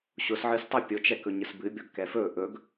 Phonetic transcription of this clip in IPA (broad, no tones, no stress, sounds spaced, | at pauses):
ɕ ʊ s ʕ ɨ s tˤ ʊ pʲ ʊ t͡ʃ ɛ k ɵ ɲ ə s b ɨ bʲ ɔ ɡ k ɛ f ɵ ʔ ɵ ɡ